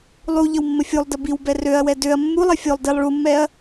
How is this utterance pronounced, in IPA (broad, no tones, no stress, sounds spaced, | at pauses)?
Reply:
lˠ u ʎ ə w mː ə fʲ u lˠ d ə b i w b ɛ r ø ɐ̯ w ɛ d ø ɐ̯ mː u lˠ ɛ fʲ o lˠ d i lˠ ɭ u mː ɛ ɐ̯